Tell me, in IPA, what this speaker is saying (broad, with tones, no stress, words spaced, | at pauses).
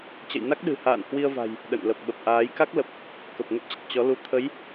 t͡ɕə̰˧˨jna˦˥k̚ɗɨ̤˨˩ha̰ː˧˨n hwi˧ə̯va̤˨˩j | ɗə̰˧˨n lə˨˩p̚ɓə˨˩p̚ʔaː˨˦j ka˦˥k̚lə˨˩p̚ | kə˨˩p̚ŋə˦˥p̚t͡ɕə˨˩t̚ t͡ɕɔ˨˦lu˧ t̪ʰə˨˦j